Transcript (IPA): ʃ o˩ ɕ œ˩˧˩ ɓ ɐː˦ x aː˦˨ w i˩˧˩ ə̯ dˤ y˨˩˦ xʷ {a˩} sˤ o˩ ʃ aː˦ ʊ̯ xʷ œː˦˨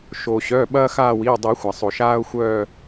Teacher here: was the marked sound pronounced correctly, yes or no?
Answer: yes